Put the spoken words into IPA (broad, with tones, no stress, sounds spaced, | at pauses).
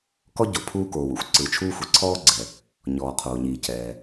k ɔ˥ ɟ o˩ pʰ uː˥ k oː˩ w ṵ˥ xʷ ǀ ɯ˩ t͡ʃʰ uː˥ xʷ i˩ ǀʰ ɔː˥ ɡ͡ǀ ɛ˩ | ɲ ɔː˩ qʰ oː˩ ɲ iː˩ c ɛː˩